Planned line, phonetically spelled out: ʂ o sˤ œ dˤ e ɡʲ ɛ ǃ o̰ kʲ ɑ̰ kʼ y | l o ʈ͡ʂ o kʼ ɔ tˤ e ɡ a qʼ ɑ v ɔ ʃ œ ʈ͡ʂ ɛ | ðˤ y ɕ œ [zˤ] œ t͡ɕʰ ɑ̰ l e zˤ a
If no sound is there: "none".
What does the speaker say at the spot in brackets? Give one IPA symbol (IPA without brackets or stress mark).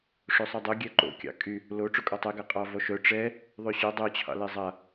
dˤ